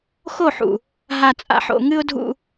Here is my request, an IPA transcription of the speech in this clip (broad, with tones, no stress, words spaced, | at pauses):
xo˦˨ħṵ˨ | ɦa˨t͡sʼa̰˨ħo̰˨ ŋɨ˦ʊ̯dʱṵ˦